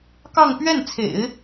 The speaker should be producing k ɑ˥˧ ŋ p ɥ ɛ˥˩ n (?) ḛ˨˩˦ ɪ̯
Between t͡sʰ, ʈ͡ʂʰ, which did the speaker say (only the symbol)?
t͡sʰ